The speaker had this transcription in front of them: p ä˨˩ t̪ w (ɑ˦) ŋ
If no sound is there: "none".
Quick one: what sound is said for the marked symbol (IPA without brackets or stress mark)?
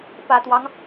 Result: ɑ˦